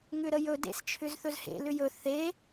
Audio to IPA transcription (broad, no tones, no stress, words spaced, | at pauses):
ŋʏɾəjɵdḛs t͡ʃʰʏzθɵzhḛ lʏjɵ θe